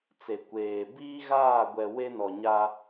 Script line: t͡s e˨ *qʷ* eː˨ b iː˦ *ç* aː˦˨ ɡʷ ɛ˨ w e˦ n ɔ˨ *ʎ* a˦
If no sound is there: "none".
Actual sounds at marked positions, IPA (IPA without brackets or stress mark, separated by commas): kʷ, ɣ, ɲ